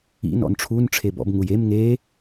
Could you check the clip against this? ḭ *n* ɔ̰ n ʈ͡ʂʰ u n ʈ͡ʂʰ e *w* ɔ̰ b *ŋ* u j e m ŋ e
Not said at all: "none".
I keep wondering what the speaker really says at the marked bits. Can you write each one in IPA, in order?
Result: n, b, ŋ

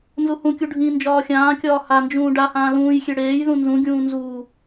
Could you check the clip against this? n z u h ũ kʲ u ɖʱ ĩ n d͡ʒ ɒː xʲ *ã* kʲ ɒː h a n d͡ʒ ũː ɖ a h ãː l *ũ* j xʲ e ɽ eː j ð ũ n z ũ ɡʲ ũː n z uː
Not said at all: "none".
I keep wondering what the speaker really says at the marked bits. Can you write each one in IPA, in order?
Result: ãː, ũː

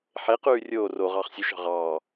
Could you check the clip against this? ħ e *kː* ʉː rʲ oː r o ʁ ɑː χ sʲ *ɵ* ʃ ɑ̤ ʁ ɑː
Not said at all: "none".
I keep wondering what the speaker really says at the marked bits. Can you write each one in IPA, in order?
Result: q, ɵ

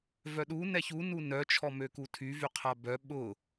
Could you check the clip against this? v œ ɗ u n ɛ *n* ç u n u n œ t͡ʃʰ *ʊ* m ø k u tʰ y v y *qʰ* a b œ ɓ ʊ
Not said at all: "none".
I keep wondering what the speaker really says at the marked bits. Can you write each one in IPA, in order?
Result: none, ɔ, qʰ

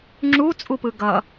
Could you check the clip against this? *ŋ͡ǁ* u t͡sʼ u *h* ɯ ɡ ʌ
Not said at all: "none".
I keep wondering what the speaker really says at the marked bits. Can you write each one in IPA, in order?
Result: ŋ͡ǁ, p

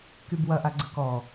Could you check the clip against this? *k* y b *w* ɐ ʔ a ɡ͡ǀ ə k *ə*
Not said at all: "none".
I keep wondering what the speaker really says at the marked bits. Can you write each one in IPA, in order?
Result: k, w, ɔ

